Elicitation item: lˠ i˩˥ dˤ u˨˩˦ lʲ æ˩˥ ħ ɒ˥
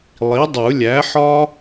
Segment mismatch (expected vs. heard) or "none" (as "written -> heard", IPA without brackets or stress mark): none